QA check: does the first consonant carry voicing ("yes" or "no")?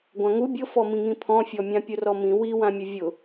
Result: yes